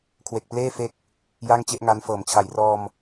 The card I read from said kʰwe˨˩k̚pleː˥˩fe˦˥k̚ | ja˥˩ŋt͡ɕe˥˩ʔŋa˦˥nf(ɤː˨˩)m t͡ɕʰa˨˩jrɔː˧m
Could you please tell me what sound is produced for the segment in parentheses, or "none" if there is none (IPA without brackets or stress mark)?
ɤː˨˩